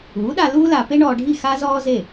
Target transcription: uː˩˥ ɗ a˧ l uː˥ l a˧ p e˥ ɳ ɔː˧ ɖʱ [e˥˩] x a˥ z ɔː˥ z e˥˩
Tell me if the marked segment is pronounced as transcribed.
no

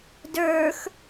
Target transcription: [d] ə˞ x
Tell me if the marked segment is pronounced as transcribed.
yes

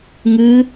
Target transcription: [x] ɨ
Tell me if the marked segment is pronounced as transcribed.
no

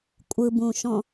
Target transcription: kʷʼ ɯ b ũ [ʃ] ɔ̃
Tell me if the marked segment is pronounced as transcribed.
yes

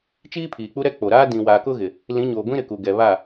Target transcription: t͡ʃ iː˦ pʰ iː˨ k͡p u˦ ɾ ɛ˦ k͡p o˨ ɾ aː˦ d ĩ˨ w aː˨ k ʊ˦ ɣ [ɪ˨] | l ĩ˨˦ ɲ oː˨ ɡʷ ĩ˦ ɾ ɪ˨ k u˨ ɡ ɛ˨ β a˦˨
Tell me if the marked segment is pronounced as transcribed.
yes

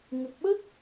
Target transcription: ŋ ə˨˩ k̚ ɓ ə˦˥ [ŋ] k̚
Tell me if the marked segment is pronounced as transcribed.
no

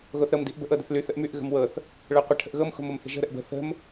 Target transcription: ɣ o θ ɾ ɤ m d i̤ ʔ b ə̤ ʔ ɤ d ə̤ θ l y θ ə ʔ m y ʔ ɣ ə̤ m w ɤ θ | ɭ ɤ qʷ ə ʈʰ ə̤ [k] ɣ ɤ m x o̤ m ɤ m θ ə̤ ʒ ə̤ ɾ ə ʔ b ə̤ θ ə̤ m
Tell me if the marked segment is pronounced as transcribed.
no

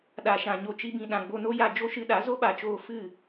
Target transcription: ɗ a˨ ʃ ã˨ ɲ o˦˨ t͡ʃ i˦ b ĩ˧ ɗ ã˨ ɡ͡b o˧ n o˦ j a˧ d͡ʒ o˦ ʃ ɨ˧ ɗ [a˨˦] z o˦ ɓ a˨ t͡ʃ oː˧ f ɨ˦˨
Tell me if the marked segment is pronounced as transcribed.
yes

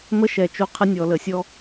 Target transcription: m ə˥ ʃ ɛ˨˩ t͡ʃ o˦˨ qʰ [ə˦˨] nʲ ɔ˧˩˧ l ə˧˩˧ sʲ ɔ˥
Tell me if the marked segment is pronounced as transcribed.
no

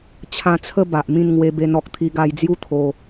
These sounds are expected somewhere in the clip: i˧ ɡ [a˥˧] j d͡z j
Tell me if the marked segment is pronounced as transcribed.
no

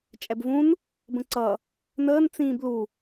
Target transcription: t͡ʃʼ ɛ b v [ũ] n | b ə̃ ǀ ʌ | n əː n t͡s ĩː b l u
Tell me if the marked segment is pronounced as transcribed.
yes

